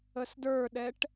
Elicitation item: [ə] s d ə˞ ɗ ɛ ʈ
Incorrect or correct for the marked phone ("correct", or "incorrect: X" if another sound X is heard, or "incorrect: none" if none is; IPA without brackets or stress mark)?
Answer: correct